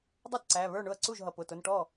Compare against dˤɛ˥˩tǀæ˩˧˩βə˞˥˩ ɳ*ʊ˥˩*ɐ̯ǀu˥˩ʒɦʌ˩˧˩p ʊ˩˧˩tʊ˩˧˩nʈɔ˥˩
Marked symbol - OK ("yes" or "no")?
yes